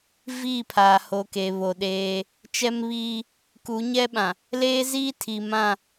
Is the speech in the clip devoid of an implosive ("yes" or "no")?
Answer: no